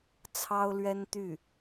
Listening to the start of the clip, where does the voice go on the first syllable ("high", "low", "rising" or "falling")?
high